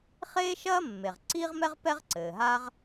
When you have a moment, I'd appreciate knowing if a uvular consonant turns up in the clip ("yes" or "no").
yes